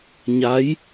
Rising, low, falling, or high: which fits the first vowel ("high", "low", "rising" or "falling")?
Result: rising